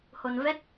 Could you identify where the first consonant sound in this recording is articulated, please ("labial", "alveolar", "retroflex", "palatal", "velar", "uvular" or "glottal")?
glottal